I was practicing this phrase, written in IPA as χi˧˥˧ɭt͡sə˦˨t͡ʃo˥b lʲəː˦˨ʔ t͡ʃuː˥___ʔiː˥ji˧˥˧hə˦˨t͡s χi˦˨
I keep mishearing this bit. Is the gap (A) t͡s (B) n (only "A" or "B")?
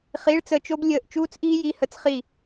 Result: A